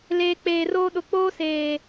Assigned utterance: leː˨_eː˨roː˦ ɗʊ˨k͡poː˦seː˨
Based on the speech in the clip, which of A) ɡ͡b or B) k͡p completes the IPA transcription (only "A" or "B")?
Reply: B